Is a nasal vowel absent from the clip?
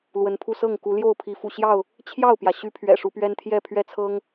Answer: yes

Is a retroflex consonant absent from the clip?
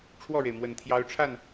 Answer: no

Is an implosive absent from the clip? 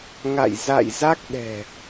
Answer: no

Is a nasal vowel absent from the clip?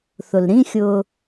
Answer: no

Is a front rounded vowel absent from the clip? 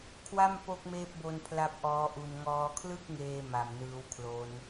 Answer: yes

